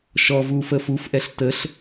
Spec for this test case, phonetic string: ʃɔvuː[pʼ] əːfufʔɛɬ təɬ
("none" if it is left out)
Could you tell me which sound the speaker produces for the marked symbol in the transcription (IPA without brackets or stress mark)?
f